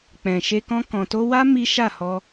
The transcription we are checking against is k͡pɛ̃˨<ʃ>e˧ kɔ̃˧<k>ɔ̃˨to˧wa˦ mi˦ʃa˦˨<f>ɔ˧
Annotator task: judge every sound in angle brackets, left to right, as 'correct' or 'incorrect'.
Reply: correct, correct, incorrect: h

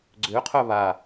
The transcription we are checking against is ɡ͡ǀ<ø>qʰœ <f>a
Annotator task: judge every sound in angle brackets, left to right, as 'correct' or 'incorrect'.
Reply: correct, incorrect: β

